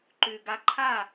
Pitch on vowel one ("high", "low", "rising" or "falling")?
low